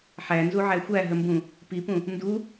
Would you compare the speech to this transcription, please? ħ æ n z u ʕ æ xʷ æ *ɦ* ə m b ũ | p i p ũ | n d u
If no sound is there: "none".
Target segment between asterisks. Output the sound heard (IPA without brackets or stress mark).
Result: ɦ